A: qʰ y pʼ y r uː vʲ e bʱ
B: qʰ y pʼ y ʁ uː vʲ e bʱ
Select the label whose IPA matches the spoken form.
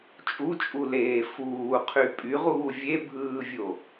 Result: B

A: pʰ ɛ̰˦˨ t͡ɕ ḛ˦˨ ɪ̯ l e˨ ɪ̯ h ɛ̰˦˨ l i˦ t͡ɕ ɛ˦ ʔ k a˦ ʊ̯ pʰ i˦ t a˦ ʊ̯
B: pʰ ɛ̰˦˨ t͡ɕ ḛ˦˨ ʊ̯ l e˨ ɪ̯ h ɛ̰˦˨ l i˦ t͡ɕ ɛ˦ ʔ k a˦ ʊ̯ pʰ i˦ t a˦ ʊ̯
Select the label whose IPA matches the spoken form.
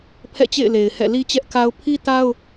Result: A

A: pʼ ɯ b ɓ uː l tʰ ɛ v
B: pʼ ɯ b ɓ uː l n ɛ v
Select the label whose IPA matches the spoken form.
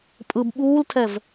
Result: A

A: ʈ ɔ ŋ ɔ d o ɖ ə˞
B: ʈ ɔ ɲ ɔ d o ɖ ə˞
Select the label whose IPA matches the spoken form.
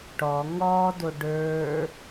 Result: A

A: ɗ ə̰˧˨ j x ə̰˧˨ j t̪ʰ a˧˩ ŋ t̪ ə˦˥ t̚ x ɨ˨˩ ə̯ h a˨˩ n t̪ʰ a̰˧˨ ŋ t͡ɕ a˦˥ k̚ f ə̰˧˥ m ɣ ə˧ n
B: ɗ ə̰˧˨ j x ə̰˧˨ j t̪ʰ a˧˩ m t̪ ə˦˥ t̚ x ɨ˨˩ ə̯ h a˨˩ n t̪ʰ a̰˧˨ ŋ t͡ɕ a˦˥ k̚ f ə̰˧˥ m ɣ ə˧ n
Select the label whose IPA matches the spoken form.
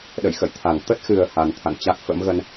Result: A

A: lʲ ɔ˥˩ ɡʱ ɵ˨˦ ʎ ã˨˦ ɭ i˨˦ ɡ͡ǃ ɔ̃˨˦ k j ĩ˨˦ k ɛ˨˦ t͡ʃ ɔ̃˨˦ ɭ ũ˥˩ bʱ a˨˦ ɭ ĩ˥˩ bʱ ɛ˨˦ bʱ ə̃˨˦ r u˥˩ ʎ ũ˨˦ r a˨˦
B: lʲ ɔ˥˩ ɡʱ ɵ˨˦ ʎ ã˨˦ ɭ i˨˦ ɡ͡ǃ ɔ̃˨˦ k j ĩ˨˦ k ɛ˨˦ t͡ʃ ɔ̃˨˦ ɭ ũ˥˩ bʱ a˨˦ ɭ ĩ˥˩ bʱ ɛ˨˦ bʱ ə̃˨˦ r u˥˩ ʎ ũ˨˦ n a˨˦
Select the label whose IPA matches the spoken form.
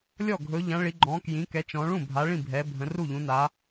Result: B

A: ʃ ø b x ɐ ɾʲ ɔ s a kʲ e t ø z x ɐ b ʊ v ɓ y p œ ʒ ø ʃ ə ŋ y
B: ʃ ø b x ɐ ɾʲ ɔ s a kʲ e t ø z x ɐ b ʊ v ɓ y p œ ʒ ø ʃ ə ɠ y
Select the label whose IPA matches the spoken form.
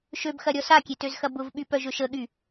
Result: B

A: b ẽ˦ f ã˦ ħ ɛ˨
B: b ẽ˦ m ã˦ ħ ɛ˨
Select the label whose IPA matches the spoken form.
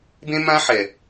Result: B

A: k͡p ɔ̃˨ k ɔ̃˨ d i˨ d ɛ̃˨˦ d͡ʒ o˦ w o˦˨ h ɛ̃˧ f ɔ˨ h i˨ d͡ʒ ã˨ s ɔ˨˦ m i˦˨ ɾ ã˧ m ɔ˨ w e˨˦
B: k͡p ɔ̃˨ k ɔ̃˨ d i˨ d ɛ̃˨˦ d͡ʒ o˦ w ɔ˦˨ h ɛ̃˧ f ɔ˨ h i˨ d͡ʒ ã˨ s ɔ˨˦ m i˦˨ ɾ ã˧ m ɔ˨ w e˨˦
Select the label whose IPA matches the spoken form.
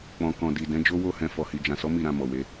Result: A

